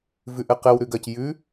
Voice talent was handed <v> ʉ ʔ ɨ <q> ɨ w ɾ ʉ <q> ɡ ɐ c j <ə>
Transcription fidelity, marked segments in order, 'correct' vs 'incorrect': correct, correct, incorrect: none, incorrect: ʉ

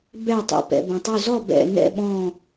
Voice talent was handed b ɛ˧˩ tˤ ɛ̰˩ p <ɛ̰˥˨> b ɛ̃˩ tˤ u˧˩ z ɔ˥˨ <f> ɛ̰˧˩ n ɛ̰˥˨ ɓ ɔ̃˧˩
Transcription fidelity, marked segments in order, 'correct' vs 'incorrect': incorrect: ɛ̰˩, incorrect: b

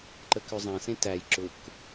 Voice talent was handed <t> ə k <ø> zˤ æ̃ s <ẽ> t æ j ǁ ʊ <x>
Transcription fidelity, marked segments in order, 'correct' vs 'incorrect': incorrect: ǃ, correct, correct, incorrect: k

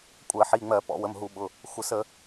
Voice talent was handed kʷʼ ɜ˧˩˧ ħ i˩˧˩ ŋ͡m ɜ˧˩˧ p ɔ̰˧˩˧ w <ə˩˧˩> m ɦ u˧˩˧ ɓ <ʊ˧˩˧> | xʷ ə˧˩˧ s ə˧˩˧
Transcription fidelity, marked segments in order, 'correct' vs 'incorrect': correct, incorrect: ʊ˩˧˩

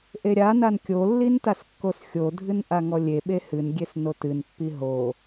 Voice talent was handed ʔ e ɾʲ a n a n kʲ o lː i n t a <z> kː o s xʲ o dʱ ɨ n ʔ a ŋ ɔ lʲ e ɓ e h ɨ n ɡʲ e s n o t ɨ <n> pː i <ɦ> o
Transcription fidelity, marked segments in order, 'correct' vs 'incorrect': incorrect: s, correct, correct

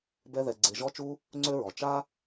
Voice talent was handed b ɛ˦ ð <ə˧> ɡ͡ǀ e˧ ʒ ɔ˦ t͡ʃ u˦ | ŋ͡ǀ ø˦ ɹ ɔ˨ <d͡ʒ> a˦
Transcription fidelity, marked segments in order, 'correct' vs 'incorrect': incorrect: ɛ˧, incorrect: t͡ʃ

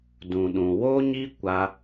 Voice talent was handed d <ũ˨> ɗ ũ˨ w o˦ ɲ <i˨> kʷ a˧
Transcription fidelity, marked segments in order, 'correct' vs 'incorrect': correct, incorrect: i˦

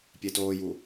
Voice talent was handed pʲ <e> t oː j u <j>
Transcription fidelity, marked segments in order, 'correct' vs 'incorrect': correct, incorrect: none

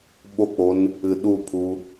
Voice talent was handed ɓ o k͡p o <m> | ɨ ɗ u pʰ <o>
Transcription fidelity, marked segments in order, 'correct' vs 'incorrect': incorrect: n, incorrect: u

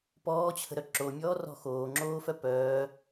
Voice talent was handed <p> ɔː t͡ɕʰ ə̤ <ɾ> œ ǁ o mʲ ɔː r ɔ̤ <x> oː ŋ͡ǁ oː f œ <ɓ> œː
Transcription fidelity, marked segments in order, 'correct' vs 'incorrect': correct, correct, correct, incorrect: p

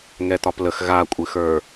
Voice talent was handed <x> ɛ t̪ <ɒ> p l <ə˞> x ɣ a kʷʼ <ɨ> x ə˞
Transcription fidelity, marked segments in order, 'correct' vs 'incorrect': incorrect: ŋ, correct, incorrect: ə, correct

